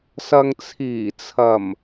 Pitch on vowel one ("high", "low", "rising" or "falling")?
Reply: low